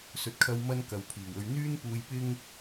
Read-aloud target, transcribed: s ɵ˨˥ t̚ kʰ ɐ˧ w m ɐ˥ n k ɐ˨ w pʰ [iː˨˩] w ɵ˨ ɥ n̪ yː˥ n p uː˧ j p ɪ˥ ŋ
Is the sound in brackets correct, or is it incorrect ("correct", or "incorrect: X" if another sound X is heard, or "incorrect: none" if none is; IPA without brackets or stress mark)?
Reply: correct